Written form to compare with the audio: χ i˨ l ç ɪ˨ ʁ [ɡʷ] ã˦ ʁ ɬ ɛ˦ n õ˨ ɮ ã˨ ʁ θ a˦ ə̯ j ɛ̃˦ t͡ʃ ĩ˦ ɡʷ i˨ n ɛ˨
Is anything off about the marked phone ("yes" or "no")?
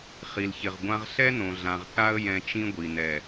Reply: no